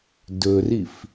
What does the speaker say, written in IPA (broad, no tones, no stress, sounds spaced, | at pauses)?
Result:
d ɵ r i f